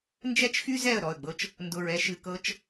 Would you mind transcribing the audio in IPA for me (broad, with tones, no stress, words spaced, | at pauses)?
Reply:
nd͡ʒɛ˦t͡ʃxy˦zɛ˦˨ə̯ ɾɔ˦˨ə̯ɡ͡bɤ˦t͡ʃ | ndʊ˧ɹɛ˦ʃɨ˧kɤ˦t͡ʃ